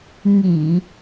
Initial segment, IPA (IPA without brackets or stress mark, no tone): ŋ